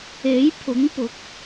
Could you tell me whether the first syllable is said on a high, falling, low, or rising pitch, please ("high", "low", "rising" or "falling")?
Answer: rising